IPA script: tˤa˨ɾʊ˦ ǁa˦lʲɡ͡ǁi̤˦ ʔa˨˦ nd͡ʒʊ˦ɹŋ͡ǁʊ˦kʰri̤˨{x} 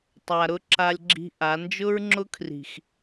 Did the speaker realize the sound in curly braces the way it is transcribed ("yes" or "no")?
yes